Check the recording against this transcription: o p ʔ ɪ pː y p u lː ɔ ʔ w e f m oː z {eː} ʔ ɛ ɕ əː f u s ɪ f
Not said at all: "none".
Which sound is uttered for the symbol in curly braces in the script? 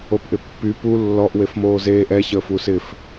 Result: eː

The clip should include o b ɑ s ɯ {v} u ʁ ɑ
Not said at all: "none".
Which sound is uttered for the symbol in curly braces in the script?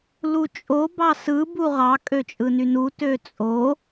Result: b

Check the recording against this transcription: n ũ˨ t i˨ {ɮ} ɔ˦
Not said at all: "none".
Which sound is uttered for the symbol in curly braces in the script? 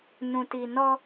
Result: n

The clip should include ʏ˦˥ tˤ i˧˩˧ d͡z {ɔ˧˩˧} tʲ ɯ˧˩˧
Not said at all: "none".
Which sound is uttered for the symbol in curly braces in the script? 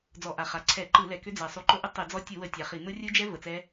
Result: ɔ˦˥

